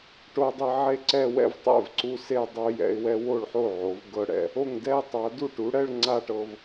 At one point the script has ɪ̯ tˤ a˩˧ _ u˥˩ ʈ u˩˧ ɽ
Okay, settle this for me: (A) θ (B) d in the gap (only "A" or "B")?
B